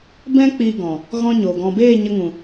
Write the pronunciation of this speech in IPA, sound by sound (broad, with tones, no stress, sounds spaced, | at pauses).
b ɛ̃˦ k͡p i˧ ɡ ɔ̃˨ | ɣ ɔ̃˦ ɲ o˨ ɡ ɔ̃˧ b eː˦˨ ɲ ə˧ ŋ ũ˨